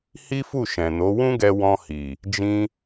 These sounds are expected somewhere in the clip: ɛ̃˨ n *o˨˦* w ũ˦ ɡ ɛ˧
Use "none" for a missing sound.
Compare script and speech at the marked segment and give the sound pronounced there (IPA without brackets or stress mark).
o˨˦